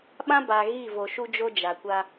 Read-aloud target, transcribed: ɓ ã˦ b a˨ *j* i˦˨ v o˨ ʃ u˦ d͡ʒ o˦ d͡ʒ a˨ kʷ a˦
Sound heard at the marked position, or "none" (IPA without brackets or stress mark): ɣ